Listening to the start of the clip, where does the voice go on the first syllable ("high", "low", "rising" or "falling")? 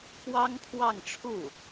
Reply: high